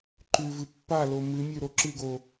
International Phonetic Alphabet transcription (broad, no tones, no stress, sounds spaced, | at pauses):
ǃ ʉ v ɨ pː a l o m ɨ mʲ ʉ ɾ o ǁ ɨ ɡ o